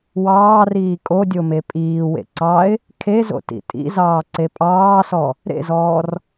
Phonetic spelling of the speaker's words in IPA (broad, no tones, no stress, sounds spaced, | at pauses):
w ɑː r iː kʼ o dʲ o m e pʼ iː w ḛ ǀ ɑ ɪ̯ | kʰ e z o̰ t ḭ tʼ ḭ z ɑː ǀ e pʼ ɑː s ɔ | ɾ ḛ z ɔː r